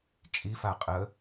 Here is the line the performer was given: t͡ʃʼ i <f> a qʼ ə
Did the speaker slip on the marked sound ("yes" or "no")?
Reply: no